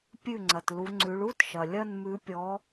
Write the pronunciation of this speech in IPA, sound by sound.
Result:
pʲ ʉ˥˩ ŋ͡ǀ ɐ˨ t l u˨˦ ŋ͡ǀ ʉ˨˦ ɭ u˥˧ t ʃ ɐ˨ lʲ ɐ˥˧ n m ʉ˨˦ pʲ ɔ˨˦

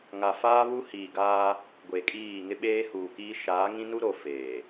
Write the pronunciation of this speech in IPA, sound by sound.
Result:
ŋ a˨ f aː˦ β u˦ h iː˨ ɡ aː˦ | ɡʷ e˨ kʼ iː˦˨ ŋ ɪ˦ ɓ eː˦ h uː˨ k iː˦ ʃ aː˨˦ ŋ ĩ˦ n u˦ ɾ o˨ f eː˨

